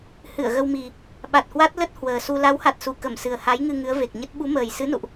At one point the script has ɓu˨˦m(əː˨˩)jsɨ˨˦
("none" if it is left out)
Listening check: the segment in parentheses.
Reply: əː˨˩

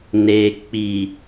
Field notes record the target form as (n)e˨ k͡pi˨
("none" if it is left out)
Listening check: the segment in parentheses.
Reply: n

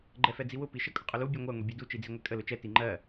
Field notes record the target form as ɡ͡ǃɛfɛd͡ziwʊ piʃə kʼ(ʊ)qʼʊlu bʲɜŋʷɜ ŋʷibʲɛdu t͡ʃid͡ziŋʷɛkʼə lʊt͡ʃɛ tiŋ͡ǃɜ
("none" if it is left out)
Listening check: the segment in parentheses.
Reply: ʊ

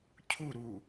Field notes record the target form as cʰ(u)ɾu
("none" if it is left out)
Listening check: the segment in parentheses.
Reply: u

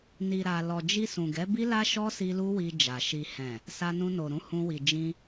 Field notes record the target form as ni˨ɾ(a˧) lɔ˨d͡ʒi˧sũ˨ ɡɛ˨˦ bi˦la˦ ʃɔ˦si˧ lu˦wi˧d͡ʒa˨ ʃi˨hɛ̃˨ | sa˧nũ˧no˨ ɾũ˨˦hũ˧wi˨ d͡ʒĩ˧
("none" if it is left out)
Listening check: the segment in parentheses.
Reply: a˨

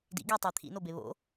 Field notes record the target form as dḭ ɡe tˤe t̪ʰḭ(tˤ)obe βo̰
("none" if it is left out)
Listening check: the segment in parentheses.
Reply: n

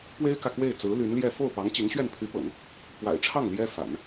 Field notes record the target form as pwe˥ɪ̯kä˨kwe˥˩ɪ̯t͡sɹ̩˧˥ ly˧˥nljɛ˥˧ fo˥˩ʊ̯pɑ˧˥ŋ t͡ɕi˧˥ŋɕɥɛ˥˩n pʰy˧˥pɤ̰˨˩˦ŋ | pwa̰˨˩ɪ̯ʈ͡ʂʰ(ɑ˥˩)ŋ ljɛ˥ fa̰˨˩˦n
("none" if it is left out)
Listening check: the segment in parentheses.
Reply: ɑ˥˩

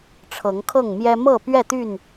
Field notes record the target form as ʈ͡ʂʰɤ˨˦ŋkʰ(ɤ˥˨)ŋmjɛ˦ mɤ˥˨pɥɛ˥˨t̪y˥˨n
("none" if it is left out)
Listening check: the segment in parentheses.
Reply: ɤ˥˨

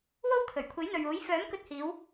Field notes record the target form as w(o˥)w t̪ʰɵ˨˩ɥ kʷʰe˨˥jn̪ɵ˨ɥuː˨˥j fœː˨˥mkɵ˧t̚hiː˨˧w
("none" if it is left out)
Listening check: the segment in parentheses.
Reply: o˥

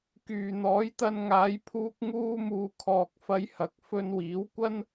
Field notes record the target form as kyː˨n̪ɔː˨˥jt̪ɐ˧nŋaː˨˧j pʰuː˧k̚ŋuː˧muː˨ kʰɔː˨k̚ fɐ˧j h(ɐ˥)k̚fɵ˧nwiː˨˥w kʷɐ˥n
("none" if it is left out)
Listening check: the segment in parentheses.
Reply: ɐ˨˥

